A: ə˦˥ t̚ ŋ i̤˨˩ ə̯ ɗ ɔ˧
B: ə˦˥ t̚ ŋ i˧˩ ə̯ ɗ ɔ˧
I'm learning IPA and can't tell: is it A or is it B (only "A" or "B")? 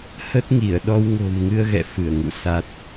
B